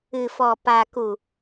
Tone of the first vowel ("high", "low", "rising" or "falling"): low